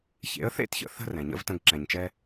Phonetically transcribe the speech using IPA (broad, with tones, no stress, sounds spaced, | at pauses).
ç ḛ˨˦ ə̯ θ ḛ˦ t ç ə̰˨ θ ə̤˧ r ɛ̃˨ ɲ ə̰˦ v t ə̃˧ ɡ ǁ ɛ̃˨ ɲ t͡ʃ ɛ˦